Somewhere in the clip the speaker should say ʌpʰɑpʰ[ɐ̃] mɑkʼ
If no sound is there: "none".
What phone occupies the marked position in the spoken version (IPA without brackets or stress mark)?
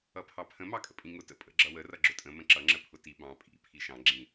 ə̃